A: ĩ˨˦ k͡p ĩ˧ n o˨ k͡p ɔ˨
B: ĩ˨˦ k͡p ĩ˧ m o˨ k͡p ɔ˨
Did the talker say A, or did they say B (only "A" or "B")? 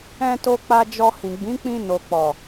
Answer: A